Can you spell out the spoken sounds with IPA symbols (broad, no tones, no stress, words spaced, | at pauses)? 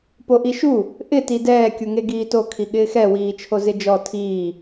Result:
poʔiʃu | ʔɪ tidɛː kʲuŋeɡiːto kʰiɠɪːxɛ wiːt͡ʃʰozɪd͡ʒɔ tʰiː